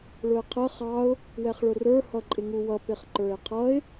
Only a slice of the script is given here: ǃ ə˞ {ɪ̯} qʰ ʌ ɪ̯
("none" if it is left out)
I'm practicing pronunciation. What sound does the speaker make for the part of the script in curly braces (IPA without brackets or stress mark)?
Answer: ɪ̯